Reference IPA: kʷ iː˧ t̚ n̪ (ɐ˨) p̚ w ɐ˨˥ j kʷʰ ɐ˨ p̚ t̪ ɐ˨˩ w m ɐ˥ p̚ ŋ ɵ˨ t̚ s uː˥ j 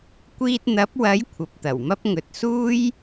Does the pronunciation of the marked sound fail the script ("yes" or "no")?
yes